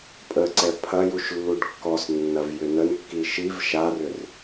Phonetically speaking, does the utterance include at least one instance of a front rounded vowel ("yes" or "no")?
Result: yes